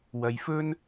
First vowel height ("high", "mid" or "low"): low